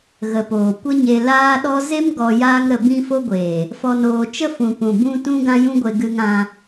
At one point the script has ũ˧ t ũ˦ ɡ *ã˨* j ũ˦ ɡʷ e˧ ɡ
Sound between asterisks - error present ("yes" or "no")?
yes